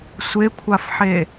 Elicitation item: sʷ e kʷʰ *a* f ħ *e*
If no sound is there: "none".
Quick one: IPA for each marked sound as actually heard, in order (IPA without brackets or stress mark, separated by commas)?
a, e